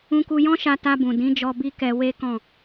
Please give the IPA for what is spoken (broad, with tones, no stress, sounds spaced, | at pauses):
ũ˧ k u˧ j ɔ̃˦ ʃ a˧ t a˧ b ũ˨ d ĩ˨˦ d͡ʒ ɔ˧ b i˦ k ɛ˧ w e˦ k ɔ̃˦˨